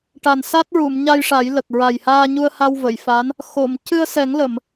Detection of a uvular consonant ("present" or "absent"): absent